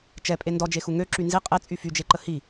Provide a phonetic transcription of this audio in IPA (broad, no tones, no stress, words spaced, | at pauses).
t͡ʃɛpʼe ndɔd͡ʒexu ŋø ǁynzi qʼe t͡sʼyfyd͡ʒeǃə hi